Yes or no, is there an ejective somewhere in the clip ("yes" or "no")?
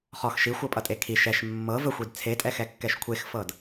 yes